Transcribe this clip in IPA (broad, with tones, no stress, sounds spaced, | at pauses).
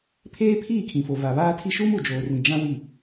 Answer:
pʰ eː˦ pʰ iː˦˨ kʰ ĩ˨ f o˨ v a˨ β aː˦ tʰ i˦ ʃ uː˦ m u˨ d͡ʒ oː˨ r ĩ˨ d͡ʒ ã˦ w i˦˨